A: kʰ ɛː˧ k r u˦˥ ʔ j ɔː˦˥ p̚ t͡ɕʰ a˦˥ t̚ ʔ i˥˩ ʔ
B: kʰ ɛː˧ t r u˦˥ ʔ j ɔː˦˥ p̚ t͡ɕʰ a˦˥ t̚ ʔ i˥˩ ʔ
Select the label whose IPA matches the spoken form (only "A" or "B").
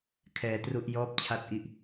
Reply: B